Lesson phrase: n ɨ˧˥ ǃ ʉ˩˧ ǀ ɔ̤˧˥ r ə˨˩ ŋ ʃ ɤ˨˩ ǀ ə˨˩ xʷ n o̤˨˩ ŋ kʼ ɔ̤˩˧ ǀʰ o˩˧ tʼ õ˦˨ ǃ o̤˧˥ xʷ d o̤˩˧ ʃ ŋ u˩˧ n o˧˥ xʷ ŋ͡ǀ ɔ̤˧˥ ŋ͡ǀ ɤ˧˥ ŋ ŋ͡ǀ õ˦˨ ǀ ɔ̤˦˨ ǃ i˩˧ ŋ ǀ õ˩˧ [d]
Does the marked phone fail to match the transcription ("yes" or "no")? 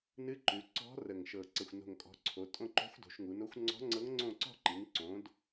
no